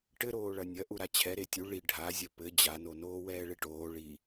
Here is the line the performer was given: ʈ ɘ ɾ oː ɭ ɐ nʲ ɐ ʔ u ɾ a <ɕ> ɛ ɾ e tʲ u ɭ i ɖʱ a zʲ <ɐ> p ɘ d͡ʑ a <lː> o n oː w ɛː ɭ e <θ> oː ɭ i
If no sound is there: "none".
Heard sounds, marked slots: t͡ɕʰ, ɐ, n, ʈ

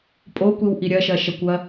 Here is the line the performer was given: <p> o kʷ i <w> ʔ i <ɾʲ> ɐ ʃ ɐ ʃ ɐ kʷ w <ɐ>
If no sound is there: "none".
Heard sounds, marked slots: pʼ, w, ɾʲ, ɐ

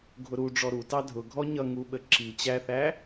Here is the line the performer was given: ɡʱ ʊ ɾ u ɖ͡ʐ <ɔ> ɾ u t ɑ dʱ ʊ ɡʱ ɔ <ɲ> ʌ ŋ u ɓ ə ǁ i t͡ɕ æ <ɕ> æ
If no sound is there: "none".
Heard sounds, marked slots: ɔ, ɲ, θ

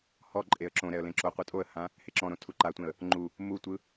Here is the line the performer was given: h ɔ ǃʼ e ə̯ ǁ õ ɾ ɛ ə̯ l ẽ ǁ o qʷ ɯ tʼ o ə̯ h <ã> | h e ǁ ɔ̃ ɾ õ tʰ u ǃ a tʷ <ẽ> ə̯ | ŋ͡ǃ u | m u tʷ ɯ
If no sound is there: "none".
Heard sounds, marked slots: ã, ẽ

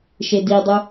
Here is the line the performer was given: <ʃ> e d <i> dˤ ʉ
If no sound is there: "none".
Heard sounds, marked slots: ʃ, i

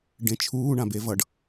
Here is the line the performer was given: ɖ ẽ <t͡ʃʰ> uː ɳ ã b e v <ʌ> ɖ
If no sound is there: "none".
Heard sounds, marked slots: t͡ʃʰ, ʌ

